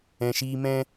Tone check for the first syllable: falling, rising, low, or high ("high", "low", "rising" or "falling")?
low